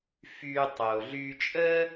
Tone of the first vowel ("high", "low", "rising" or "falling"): high